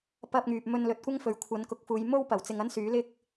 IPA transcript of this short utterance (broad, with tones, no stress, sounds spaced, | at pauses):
p ɐ˧ p̚ ŋ yː˨ p̚ m ɵ˧ n l ɵ˨ t̚ kʷ ɐ˥ ŋ f ɵ˨ ɥ kʷʰ ɐ˨˧ n k ʊ˨˥ k̚ f uː˨˧ j m o˥ w p ɐ˨˩ w t͡s ɪ˧ ŋ ɐ˥ n s yː˨˥ l ɪ˥ k̚